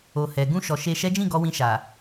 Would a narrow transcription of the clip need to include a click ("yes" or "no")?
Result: no